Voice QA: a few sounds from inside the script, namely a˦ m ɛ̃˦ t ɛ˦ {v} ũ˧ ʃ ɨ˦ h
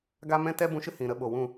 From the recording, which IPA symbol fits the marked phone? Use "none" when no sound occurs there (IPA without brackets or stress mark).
b